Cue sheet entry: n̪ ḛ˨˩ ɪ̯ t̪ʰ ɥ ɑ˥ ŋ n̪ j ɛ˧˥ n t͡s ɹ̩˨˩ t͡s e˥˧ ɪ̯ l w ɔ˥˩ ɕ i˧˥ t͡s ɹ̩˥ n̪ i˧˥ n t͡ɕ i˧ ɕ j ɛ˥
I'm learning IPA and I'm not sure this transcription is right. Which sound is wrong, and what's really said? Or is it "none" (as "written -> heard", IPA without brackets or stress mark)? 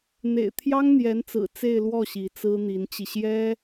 ɥ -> j